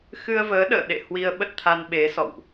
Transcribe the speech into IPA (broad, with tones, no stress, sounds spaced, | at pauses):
x ɨ˧ ə̯ v əː˨˦ ɗ ə̰ː˧˨ ɗ ḛ˧˨ h w i˧ ə̯ ɓ ə˦˥ t̚ t̪ʰ a˧ n ɓ e˨˦ s ɔ̰˧˨ w ʔ